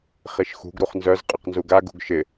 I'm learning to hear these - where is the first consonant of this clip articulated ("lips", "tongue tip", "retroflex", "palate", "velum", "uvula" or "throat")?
uvula